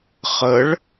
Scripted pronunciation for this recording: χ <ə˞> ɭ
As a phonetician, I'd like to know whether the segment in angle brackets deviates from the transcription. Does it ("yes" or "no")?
yes